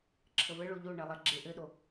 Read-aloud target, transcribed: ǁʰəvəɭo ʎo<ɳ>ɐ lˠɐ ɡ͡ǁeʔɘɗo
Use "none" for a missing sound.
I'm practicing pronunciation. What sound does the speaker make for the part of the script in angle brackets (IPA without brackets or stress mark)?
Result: ɳ